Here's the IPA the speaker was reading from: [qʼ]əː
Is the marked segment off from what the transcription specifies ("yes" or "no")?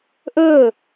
yes